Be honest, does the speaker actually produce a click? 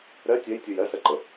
yes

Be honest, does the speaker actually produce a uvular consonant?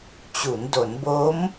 no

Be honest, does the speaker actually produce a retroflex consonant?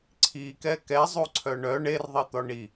yes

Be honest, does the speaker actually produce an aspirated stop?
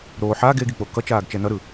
no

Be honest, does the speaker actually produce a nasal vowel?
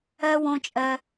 yes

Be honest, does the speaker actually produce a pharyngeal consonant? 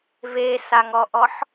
yes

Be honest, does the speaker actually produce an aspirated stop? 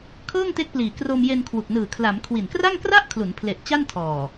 yes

